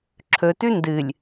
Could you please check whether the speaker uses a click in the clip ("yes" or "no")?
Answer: yes